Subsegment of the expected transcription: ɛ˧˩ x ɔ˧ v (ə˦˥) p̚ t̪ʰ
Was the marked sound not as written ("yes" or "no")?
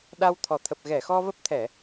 no